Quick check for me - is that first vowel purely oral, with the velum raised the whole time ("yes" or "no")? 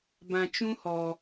no